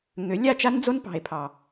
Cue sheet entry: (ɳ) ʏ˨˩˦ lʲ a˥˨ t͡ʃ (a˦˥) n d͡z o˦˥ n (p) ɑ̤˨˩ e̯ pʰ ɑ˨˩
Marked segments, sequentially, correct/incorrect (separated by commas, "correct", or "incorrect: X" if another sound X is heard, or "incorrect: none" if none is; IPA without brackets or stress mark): incorrect: ŋ, correct, correct